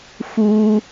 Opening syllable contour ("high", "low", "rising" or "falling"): high